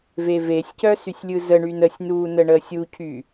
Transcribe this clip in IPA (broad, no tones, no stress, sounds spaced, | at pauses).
v e v e sʲ c œ s y sʲ lʲ ɯ z ə ɳ y n ə sʲ n uː n ə ɳ əː sʲ u cʰ y